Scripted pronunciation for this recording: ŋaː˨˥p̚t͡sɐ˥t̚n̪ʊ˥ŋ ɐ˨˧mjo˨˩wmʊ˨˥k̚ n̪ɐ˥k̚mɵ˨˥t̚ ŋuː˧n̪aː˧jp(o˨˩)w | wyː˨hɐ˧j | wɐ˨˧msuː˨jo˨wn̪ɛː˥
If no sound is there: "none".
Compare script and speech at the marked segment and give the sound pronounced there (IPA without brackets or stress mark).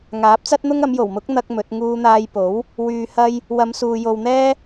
o˨˥